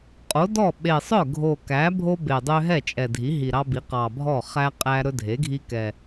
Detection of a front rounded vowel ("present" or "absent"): present